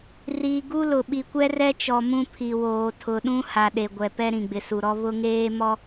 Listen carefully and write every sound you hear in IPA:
riː˨ ɡu˦lʊ˨ ɓi˨kʷɛ˦rɛ˦t͡ʃɔ˨ mũ˦pʰi˨woː˨ tʰʊ˨ɗũ˦ha˨ ɗe˨ɡʷɛ˨pɛ˦ ɾĩ˨ɡ͡bɪ˨su˨ɾɔ˦ βʊ˦ŋeː˦ mɔ˦

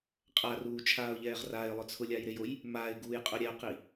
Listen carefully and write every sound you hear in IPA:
qʼaruːt͡ʃʰaːʊ̯ʎɛːʁ raɪ̯lˠʊ t͡sʰʊlʲajɾejoj | maɪ̯ɡuːjqʼʊ ɾʲɛʊ̯qi

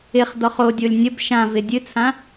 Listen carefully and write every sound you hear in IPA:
ɪχdɔχ odʲolʲ nʲəb ʃãvɪ dʲɨt͡sʰã

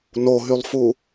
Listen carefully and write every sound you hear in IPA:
noɦylˠfu

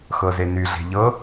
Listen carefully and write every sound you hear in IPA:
xɤzeny ɮe̤ʎɤ

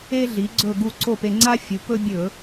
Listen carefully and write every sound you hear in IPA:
e˥ ɮi˩˥ɡ͡ǀɵ˥˨ɡu˥˨ ǀo˥˨pe˧ŋ͡ǀa˥fʲu˩˥ pɵ˥ bʲɵ˧˩˧

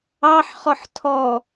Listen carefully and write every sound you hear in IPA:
ɑħχɔħ tʰɔ

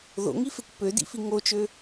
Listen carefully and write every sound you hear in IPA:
ðo̰ŋifekʷ pødḭfi ŋot͡ʃø

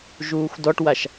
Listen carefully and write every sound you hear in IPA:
ʒuːxʷdɔʈwaʃ

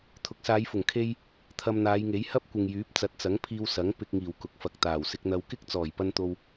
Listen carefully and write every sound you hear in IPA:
t̪ʰʊ˨˥k̚saː˨˧jfʊ˨˩ŋkʰe˧j | t̪ʰɐ˧mn̪aː˨˧jŋe˨˥j hɐ˥p̚kʷɪ˨ŋ jyː˨˥p̚t͡sɐ˨˥t̚t͡sɐ˨˥ŋpʰiː˧w sɐ˨˥ŋpɪ˧k̚ ŋiː˨˩w kʊ˨k̚fɐ˨k̚t̪aː˨˩w sɪ˧k̚n̪ɐ˧w kɪ˥k̚t͡sɔː˨˩jpɐ˧n t̪o˧w

